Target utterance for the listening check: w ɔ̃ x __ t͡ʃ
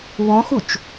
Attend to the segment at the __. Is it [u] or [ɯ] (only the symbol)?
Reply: u